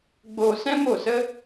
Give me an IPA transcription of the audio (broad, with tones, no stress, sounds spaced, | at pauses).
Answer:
ɡ͡b oː˧ s ɛ̃˦ m o˦˨ s ə˦